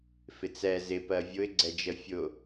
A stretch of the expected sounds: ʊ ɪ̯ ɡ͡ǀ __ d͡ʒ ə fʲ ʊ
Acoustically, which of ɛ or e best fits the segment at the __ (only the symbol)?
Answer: ɛ